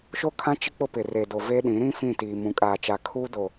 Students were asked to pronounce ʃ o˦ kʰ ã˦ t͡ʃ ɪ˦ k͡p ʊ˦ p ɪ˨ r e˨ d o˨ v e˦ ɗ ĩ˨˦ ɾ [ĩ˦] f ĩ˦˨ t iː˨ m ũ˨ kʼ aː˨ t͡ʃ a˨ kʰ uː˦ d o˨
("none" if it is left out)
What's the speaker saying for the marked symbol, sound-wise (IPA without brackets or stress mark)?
ĩ˦